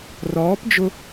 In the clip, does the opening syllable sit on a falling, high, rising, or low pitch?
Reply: rising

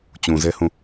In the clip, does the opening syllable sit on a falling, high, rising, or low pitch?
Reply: low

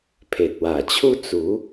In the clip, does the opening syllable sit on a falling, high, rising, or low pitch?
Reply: low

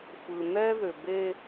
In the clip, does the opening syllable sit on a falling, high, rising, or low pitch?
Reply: low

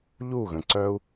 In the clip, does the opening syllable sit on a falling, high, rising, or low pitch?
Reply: falling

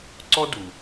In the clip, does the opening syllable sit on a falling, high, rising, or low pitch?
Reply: high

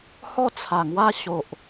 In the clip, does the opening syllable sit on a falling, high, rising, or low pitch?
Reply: falling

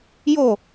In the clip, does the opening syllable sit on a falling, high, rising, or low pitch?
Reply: falling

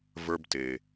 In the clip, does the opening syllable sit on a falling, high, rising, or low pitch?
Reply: high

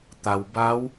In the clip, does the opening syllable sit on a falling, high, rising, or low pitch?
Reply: low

